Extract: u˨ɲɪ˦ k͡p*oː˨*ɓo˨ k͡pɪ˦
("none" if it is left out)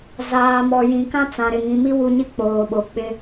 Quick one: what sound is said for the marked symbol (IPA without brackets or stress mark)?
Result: oː˨